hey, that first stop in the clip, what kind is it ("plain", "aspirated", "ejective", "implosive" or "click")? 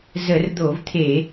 plain